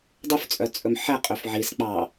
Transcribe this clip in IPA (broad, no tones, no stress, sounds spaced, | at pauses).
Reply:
dˤ y f t͡sʼ œ t͡sʼ ɵ m ħ ɛ qʼ ø f ʕ i s k͡p ɑ